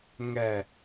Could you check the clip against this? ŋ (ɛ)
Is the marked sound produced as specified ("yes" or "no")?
yes